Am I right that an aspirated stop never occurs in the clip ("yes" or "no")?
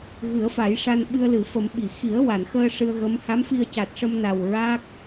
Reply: yes